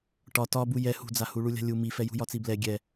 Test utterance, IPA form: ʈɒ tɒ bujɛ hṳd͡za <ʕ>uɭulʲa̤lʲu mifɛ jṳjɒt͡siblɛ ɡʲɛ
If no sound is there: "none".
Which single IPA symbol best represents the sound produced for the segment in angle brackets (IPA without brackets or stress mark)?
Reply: h